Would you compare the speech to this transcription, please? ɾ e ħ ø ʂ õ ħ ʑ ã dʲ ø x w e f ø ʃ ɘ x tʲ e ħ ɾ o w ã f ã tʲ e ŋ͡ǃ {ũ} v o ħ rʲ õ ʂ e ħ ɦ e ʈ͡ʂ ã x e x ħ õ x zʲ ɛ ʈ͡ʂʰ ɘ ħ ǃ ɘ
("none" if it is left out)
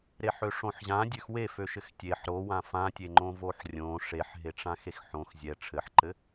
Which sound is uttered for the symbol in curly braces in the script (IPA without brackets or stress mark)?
õ